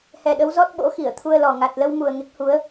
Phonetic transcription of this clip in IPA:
h ɛ˨˩ ɗ ə˨˦ w z ɔ˦˥ t̚ ɓ o̰˧˥ x i˧˩ ə̯ t̪ʰ u˧ ə̯ l ɔ˨˩ ŋ a˨˩ t̚ l ə˧ w m u˨˩ ə̯ ŋ e˦˥ k̚ h u˨˦ ə̯

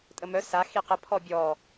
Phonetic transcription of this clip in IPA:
tʼ ə m œ s a x i q ə pʰ ɔ bʲ ɔ

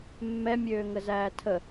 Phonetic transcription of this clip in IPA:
mː ɛ mʲ øː ŋ ə z æː tʰ ə

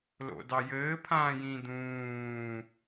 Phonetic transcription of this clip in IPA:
l o̰ d ɑ j ɘː pʰ ãː j ĩ d̪ ũː

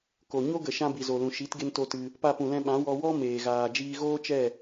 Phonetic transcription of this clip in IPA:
k o˨ ɲ o˦ ɡ ə˨ ʃ ã˧ b i˨ z o˨ l ũ˨ ʃ i˨˦ t ɡ e˦ n t o˦ t ɨ˧ | p a˧ p ũ˨ l ɛ̃˧ ɓ ã˨˦ w ɔ˧ w ɔ˦ m eː˨ ɣ aː˨ d͡ʒ iː˧ ɣ oː˦ t͡ʃ ɛ˦˨

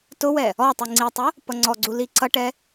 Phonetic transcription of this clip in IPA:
t ʊ w ɛ | ɔ tˤ i ŋ͡ǀ i tˤ ʊ | p ʌ ŋ͡ǀ ɔ ɡ͡ǀ u l i ǀ ʌ ʈ ɛ

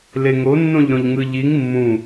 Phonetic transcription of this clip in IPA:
l e ŋ o nː õ ʎ ɾ õ ʎ ŋ ɯ ʎ i ŋ mː ũ

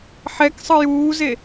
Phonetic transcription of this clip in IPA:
ħ ɛ k sˤ ɯ j uː z e

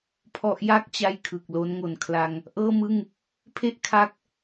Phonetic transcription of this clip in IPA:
pʰ ɔ˦˥ ʔ j a˥˩ k̚ t͡ɕ a˥˩ j kʰ ɯ˨˩ k̚ l o˦˥ n ŋ o˨˩ n kʰ l a˧ ŋ | ʔ ɤː˥˩ m ɯ˥˩ ŋ | pʰ e˥˩ ʔ kʰ a˦˥ k̚

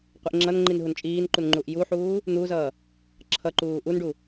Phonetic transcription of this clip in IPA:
qʷ i ʔ ŋ͡ǁ ʌ n ŋ͡ǃ i n ɦ u n t͡ʃʼ iː n ǃ u n ŋ͡ǃ u ʔ j u ħ uː | n̪ u z ʌː | ǁʰ ʌ ǃ uː ʔ u n ɖ u

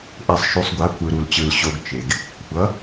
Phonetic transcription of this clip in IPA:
ʔ e˨ sˤ ʃ u˨ sˤ ɡʷ a˨˦ kʷ ɯ˨ ɾ u˨ l t͡ɕ ɯ˨ l ɕ o˦ ɡ t͡ʃ e˨ ɡ | kʷʰ ʌ˨˦

